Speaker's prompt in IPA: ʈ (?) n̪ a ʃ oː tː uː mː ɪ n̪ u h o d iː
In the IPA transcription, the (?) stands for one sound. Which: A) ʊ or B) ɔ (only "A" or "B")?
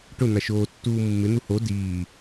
A